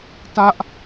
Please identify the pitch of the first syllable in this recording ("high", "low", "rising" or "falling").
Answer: high